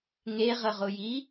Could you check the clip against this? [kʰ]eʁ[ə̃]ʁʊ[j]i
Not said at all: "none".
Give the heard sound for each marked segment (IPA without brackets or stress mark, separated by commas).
ŋ, ə, j